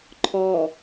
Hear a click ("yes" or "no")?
yes